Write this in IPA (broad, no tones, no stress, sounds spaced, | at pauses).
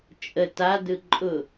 t͡ʃʼ ə t a d ɯ ǃʼ ʊ